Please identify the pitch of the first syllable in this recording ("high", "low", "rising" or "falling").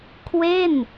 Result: falling